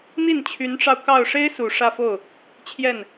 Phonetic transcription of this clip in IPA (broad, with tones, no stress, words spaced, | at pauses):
n̪i˥˩nt͡ɕʰy˧˥nʈ͡ʂɑ˧ʊ̯ kɑ˥˩ʊ̯ ʂe˥ɪ̯su˨˩ ʂä˥˧fo˥˩ʊ̯ | t͡ɕʰjɛ˥˩n